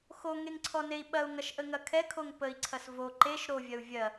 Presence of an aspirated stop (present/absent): present